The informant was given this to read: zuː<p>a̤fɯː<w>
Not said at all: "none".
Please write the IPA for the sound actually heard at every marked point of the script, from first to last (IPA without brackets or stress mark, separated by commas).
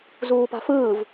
p, v